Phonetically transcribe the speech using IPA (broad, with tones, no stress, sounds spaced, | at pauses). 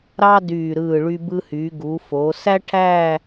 ɾ ɑ˥ d yː˧˩ ɾ ɯː˧˩ ɭ y˧ b ɯ˧ h yː˩˧ ɡ u˩˧ f oː˩˧ s æ˥ ʈʰ æː˥˧